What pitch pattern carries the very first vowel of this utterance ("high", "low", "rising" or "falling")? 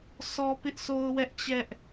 high